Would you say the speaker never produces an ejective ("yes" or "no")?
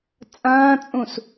no